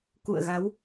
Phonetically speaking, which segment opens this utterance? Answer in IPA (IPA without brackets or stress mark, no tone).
k